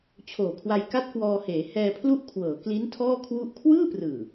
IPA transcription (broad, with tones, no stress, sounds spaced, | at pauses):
t͡ɕʰ oː˨˩ kʰ w a˧ j k a˥˩ t̚ k w ɔː˧ h eː˩˦ h ɛː˧ pʰ l u˥˩ ʔ kʰ w ɤː˩˦ k l i˦˥ n tʰ ɔː˥˩ kʰ w u˥˩ ʔ kʰ w ɯː˥˩ p r ɯː˨˩